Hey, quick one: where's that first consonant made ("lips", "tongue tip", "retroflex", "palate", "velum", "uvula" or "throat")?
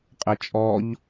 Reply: uvula